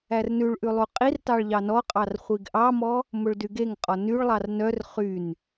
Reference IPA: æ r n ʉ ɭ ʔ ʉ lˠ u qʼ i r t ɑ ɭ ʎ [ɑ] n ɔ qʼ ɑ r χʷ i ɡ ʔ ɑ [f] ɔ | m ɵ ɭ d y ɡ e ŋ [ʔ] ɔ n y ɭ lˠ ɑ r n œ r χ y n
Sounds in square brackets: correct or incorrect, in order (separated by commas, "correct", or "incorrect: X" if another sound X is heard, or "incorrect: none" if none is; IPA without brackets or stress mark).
correct, incorrect: m, incorrect: qʼ